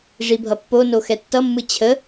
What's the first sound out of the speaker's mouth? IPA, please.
ʐ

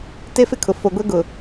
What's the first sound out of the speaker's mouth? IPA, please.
t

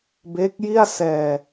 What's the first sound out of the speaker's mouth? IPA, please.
b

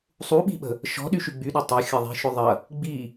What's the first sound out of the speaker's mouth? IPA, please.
sˤ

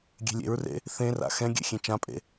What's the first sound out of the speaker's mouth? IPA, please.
ɡʲ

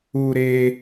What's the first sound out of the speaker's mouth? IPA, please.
u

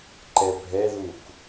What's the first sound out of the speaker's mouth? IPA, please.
ǃ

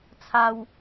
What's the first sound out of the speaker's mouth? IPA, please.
t͡sʰ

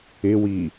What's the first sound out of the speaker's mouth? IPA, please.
ɪ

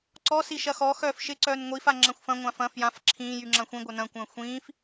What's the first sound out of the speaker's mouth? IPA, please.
ǀ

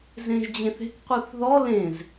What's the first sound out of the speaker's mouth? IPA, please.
z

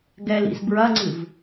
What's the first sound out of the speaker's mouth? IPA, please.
ɡ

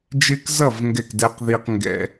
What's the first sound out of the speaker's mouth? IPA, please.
d͡ʒ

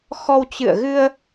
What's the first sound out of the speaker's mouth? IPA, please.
x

